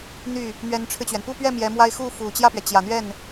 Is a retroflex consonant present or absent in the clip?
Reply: present